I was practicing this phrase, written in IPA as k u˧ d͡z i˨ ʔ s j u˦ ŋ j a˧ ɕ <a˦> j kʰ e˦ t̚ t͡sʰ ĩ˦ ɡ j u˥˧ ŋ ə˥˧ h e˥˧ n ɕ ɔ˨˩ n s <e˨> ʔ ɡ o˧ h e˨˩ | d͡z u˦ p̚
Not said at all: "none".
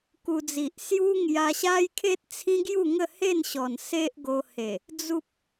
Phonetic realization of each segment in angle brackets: a˦, e˦

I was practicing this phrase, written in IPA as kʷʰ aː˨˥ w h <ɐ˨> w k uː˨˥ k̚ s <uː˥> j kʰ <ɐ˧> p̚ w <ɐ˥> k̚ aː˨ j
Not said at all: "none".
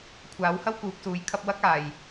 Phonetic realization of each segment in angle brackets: ɐ˥, uː˨˧, ɐ˧, ɐ˥

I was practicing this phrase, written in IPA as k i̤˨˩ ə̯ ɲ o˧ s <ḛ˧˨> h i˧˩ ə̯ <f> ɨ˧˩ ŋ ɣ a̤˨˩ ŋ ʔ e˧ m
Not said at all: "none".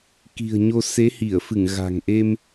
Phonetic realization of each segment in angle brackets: e˨˦, f

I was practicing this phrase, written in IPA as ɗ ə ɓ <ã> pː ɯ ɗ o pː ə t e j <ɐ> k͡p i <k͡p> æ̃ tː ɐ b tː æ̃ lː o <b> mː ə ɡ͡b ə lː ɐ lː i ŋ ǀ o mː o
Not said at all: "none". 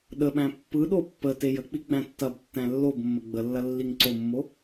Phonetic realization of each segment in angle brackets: æ̃, ə, ɡ͡b, b

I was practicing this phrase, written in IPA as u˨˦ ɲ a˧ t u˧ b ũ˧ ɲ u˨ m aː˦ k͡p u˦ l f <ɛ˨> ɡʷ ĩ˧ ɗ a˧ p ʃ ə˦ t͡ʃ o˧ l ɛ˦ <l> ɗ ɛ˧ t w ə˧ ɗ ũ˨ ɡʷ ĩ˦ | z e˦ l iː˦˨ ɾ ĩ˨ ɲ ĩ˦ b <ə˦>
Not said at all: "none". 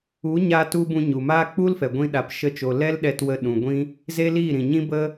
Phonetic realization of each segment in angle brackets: ɛ˨, l, ə˦

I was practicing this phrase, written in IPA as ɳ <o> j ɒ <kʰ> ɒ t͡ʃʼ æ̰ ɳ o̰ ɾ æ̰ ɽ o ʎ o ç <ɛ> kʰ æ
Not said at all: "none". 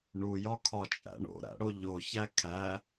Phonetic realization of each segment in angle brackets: u, kʰ, æ

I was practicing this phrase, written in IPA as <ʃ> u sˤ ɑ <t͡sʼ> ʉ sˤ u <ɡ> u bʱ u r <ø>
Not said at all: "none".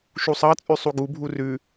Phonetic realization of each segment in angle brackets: ʃ, t͡sʼ, ɡ, ʉ

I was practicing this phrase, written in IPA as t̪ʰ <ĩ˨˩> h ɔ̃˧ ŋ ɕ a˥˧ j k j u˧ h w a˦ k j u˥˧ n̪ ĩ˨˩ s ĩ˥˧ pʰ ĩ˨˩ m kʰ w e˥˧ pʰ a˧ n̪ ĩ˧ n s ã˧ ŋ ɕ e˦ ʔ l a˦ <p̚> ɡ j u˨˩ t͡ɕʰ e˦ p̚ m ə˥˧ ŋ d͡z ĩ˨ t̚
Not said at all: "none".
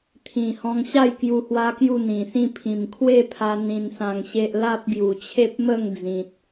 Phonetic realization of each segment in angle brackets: ĩ˨˩, p̚

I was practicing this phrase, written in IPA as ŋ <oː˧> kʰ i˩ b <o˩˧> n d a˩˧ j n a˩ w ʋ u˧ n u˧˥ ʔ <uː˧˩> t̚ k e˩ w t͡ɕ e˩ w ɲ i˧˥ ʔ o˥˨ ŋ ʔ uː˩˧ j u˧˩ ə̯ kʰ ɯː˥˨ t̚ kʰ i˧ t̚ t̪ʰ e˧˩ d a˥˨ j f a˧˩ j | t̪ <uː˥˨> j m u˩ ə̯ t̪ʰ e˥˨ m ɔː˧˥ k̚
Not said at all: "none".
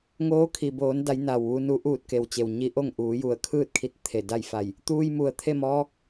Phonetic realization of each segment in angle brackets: oː˧˥, oː˩˧, uː˧˩, uː˧

